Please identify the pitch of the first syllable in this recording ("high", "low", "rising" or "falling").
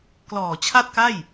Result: low